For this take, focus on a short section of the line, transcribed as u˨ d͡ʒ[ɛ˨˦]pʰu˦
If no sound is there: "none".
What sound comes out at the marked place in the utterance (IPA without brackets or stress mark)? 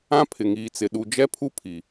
ɛ˦